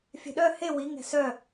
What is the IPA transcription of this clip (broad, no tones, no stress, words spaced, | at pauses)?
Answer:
fʲɛ̤ɗœ he wi ŋɛ̤sœ